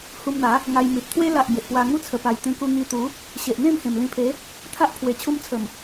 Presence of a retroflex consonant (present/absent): absent